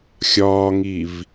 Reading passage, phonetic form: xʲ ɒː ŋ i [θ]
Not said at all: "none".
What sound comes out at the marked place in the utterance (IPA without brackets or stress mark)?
v